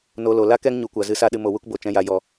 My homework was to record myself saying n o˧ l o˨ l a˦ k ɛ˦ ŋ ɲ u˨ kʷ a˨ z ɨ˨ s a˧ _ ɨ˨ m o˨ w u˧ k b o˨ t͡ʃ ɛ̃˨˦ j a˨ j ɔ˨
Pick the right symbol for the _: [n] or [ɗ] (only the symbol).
ɗ